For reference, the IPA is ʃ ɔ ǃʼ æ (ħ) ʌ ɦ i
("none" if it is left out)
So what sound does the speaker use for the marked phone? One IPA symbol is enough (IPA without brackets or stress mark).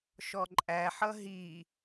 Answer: ħ